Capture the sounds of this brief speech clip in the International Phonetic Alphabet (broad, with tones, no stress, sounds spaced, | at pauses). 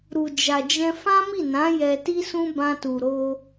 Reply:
ɾ u˨ d͡ʒ a˨ d͡ʒ ɛ̃˧ f ã˦ m i˦˨ n ã˨˦ j ɛ˧ t i˦ s ũ˦ b ã˧ t u˨ ɾ o˧